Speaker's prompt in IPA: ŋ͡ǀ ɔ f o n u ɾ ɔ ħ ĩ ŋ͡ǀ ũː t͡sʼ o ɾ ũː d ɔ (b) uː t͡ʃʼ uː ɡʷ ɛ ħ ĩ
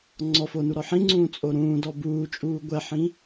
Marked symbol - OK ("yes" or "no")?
yes